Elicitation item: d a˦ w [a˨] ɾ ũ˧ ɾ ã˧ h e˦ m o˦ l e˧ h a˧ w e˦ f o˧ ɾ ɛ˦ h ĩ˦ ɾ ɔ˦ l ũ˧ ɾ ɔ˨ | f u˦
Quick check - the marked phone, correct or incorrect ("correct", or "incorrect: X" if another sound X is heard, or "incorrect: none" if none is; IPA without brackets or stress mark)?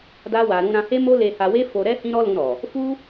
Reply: incorrect: a˧